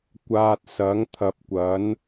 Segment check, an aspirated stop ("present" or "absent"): present